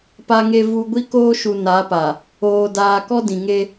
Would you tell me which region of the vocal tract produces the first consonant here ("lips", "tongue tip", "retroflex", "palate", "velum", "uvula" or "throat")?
lips